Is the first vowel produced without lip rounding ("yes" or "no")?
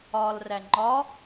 no